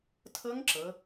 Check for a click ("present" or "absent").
present